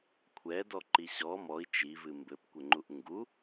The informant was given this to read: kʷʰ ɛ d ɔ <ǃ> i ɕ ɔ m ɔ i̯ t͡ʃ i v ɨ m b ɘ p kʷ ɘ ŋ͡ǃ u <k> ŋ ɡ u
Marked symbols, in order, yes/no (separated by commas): yes, no